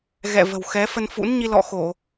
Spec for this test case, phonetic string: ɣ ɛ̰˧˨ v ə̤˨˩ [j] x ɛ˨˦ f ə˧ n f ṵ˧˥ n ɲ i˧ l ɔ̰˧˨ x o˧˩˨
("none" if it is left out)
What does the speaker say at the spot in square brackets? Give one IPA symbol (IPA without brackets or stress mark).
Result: w